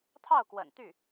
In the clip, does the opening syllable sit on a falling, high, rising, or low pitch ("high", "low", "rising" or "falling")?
falling